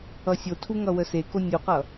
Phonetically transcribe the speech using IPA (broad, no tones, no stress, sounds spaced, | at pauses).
ʌ sʲ o tʰ u ŋ ʌ w ə s e k o nʲ u q ʌ